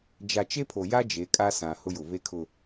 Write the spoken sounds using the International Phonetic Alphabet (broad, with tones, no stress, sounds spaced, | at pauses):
d͡ʒ a˨ t͡ʃ e˦ pʰ o˨ j a˦ d͡ʒ e˨˦ kʼ a˦ s ã˨ h ʊ˦ j ʊ˨ β e˦ kʰ ʊ˨